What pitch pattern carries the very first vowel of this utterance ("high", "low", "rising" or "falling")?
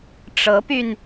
rising